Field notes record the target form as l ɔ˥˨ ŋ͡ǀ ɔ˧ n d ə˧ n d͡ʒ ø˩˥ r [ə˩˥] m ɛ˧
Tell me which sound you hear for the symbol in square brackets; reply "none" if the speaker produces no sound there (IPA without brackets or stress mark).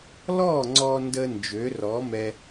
ɔ˩˥